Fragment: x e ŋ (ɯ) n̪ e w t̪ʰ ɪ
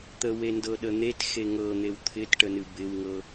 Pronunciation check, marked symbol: incorrect: ɤ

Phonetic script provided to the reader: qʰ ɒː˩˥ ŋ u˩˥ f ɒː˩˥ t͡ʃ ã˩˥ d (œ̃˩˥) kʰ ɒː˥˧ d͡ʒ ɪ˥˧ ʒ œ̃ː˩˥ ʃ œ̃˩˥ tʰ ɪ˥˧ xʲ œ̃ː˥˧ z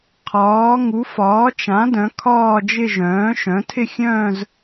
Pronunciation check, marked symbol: correct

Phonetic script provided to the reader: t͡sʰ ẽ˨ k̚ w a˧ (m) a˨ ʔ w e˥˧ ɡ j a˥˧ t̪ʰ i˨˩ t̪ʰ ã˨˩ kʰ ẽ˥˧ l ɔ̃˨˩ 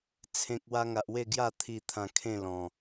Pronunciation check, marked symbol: incorrect: ŋ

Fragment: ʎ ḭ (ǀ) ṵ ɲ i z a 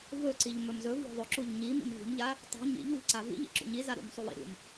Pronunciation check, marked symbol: incorrect: ǁ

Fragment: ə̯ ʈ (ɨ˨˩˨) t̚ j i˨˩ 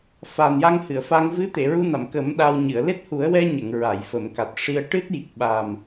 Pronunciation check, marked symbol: incorrect: ɨ˦˥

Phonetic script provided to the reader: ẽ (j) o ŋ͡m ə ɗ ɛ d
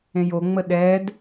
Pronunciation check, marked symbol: correct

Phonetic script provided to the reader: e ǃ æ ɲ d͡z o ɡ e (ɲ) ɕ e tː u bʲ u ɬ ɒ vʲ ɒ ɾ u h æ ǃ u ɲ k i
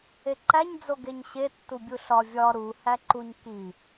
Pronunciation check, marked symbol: correct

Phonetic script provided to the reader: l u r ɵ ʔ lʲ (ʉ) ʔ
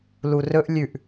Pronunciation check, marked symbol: correct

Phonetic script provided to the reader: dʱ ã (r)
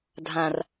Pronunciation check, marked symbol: correct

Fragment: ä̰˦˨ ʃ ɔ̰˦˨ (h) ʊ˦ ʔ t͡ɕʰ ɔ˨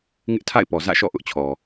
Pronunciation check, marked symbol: incorrect: ʔ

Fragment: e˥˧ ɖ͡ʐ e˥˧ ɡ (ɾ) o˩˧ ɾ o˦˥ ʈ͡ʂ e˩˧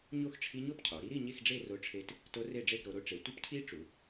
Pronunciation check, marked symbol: correct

